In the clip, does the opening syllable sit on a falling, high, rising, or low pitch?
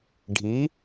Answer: rising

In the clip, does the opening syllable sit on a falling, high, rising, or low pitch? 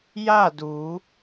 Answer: falling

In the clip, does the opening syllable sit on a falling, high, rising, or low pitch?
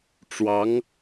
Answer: rising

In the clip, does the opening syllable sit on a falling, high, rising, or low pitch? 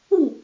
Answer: falling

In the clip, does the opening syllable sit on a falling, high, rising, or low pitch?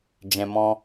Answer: low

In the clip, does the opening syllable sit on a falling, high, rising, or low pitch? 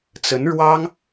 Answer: rising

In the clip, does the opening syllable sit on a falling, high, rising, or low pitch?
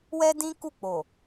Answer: high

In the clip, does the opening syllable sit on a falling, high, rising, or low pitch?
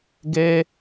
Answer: high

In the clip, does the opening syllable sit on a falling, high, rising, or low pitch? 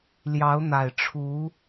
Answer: rising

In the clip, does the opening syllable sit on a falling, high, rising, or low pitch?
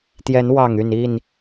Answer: rising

